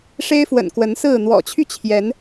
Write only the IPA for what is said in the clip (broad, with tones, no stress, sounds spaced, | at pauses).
ʂ e˦ ɪ̯ f w ə̰˨˩ n k w ə˨˦ n s ɹ̩˥˨ n̪ w ɔ̰˨˩ t͡ɕʰ y˥˨ t͡ɕʰ j ɛ˨˦ n